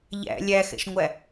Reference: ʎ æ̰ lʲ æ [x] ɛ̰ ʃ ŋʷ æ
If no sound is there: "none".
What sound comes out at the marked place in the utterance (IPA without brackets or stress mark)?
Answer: x